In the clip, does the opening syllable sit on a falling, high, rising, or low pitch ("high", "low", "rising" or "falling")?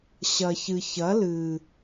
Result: low